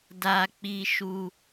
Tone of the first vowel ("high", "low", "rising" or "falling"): low